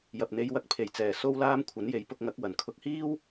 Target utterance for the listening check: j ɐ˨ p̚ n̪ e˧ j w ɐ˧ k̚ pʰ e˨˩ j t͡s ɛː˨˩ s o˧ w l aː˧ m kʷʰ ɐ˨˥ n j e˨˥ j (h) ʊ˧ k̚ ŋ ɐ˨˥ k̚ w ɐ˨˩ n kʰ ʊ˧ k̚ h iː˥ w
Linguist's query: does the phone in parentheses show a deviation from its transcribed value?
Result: yes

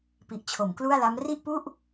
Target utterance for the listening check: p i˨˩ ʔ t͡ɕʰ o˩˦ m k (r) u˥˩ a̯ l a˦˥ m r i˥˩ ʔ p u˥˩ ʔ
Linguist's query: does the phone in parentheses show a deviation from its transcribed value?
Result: yes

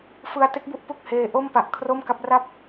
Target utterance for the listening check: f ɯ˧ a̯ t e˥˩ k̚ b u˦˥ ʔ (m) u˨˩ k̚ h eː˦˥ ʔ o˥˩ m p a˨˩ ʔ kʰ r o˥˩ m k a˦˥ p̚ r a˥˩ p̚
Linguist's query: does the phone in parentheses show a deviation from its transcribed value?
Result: yes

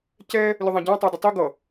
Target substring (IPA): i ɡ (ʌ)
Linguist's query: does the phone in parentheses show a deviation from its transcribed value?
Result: no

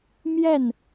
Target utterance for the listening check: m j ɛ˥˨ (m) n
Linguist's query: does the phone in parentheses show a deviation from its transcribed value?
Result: yes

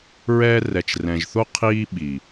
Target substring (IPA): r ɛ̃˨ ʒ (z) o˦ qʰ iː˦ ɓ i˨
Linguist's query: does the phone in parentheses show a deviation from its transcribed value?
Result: yes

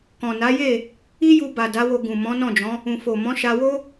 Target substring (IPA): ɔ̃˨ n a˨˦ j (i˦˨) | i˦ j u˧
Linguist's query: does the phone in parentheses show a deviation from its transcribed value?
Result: yes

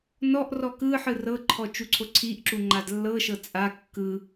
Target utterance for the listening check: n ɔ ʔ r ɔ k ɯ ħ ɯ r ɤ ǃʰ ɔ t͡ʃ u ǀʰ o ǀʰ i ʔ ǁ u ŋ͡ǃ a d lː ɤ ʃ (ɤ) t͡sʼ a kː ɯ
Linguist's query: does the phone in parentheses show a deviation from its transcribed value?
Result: no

